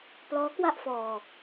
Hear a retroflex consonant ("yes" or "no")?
no